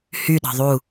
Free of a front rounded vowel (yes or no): no